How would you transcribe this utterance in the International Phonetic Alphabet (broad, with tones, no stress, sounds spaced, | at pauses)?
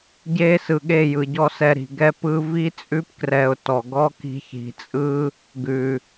ɟ e˦ s ɯ˨ ɠ e˦˨ j ɯ˨ ɟ ɔ˧ s ɛ˧ ɾ i̤˨ ɡ ɛ˦ p ɯ˦ v i˦ t͡sʼ ʉ˦ p k r ɛ˧ ʊ̯ t ɔ˨ ɡ ɔ˦ k i̤˧ ç i̤˨ t͡sʼ ɯ˦ | ɡ ʉ˨